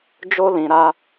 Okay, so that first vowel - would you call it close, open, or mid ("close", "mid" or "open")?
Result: mid